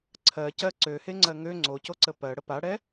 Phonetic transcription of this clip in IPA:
ǀʰ ɜ c ɜ ǀ ø h e ŋ͡ǀ ɜ ŋ ø ŋ͡ǀ o c o ǀ ə p ɜ ɽ ə p a ɽ ɛ

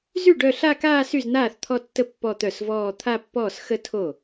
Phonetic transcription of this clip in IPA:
z y˥˩ ɖ œ˥˧ ɬ a˥˧ k aː˥˧ s y˥˩ z n̪ aː˥˩ θ t̪ʰ ɔ˥˧ tː ə˥˧ pː ɔ˥˧ t̪ œ˥˩ s v ɔː˥˧ t̪ʰ a˥˧ pː ɔː˥˩ s x ə˥˧ tʰ o˥˩

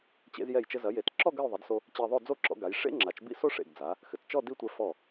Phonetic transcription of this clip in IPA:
t͡ɕ ḛ˧ z j ɛ˧˩ j t͡ʃ ɘ˧ z ɐ˩˧ j e˩˧ t ǁ ɔ˥˧ ɡ ɐ˥˧ j ðˤ i˩˧ d s o˧ | t͡ɕ e˧ ðˤ o˥˧ d͡z o˥˧ ǁ ɔ̰˧ ɡ a˩˧ j ʂ ḛ˥ ŋ͡ǁ a˩˧ t͡ʃ b ḭ˥ s o˥ ʂ ḛ˧˩ ɡ d͡z a˩˧ | x ɘ˩˧ t t͡ʃ ɔ˥˧ d i˥˧ tʷ ɛ˧ f ɔ˧˩

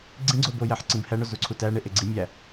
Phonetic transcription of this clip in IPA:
ɡ͡ǀ ĩ ɡ͡ǀ o b o j æ ħ ǀ ĩ b h æ ɳ o z u ǀʰ u t æ ɳ e ʔ e ɡ͡ǀ i mʲ æ

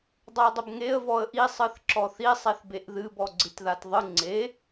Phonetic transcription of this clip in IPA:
dˤ a dˤ ə b ŋ e ə̯ v ɔ ə̯ ʔ i sˤ ɨ θ ǁ ɔ θ i sˤ i θ b e ʔ ð ɨ b ɔ ɡ͡ǀ ɨ t ð a t ðˤ ɨ ŋ͡ǀ e

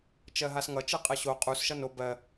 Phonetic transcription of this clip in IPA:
t͡ʃ ɜ ɦ a s ŋ ʌ t͡ʃ ɯ qʼ ɜ ɕ o qʼ u s ʃ ʌ n o b ɜ

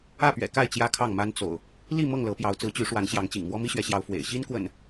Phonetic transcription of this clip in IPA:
ä˥˨ p ɥ ɛ̰˨˩ k a˥˨ ɪ̯ t͡ɕ j ä˦ kʰ ɑ˥˨ ŋ m a˦ n t͡s o̰˨˩ ʊ̯ | l i˥˨ m ɤ˥˨ ŋ l ɤ˨˦ p j ɑ˨˦ ʊ̯ t͡s ɹ̩˨˦ t͡ɕ y˨˦ ʂ w a˨˦ n ɕ j ɑ˨˦ ŋ t͡ɕ ḭ˨˩ ŋ m w ɔ˦ m i˦ ɕ ɥ ɛ˨˦ ɕ j ɑ˨˦ ʊ̯ f w ḛ˨˩ ɪ̯ ɕ i˦ n k w ə̰˨˩ n

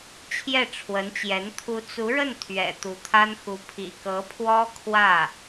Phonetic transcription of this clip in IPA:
t͡ɕʰ j ɛ˥˩ ʈ͡ʂʰ w ə˧˥ n t͡ɕ j ɛ˧˥ n t̪ʰ u˧˥ t͡s u˧˥ ɻ ə˥˩ n t̪ʰ ɥ ɛ̰˨˩ t̪ u˧˥ t̪ʰ a˥ n x u˧˥ pʰ ḭ˨˩ k ɤ˧˥ pʰ w ɔ˥ kʰ w ä˥˩

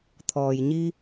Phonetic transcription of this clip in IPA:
t̪ʰ ɔː˩ j ɲ i˧

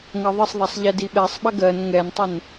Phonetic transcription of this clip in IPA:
ŋ ɜ ðˤ ə sˤ ðˤ a sˤ ʎ ɛ d i ɓ ɛ sˤ ɓ ɐ ɡ ɜ n ŋ ɛ n tˤ ə n

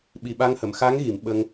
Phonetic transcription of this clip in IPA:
ɓ i˨˩ ɓ a˧ ŋ h ə˨˩˨ m x a˧˥ ŋ ɣ i˨˩˨ m ɓ ə˧ ŋ

